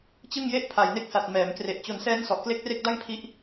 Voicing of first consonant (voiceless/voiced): voiceless